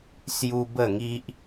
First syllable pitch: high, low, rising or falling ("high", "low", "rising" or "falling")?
high